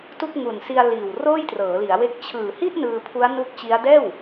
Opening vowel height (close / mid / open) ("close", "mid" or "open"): close